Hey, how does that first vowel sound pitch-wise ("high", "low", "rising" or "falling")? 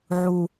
low